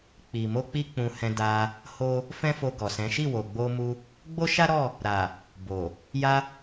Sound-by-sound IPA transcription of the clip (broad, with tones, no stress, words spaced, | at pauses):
k͡pi˨mo˧ k͡pi˦k͡pũ˧hɛ̃˧ da˧ | ho˦ | fɛ̃˦fo˧ɡɔ˨sɛ̃˨˦ ʃi˦˨wo˨ɡ͡bo˧mu˧ | ɡ͡bo˦ʃa˦ɾɔ˦˨ | ɾa˨ | bo˨ | ja˧